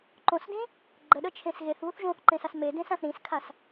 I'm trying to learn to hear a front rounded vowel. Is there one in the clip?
no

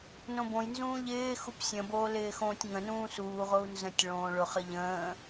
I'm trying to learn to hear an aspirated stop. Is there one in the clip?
no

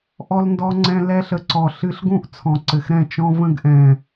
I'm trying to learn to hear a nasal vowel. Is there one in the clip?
yes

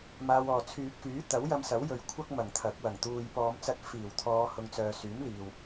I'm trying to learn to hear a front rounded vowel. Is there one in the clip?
yes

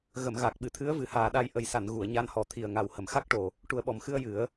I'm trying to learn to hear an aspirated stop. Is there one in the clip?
yes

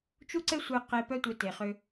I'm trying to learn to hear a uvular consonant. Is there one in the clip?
yes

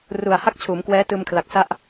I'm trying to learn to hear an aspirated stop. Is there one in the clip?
yes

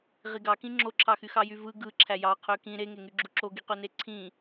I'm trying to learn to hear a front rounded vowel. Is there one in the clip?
yes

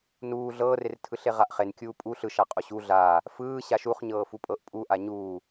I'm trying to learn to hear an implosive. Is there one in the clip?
no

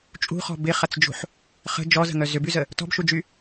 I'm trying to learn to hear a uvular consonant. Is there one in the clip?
yes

